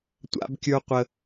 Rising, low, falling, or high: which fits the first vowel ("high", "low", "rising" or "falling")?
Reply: high